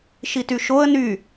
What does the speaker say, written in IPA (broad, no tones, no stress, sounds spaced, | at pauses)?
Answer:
ʃ i t y ʃ o ə̯ n y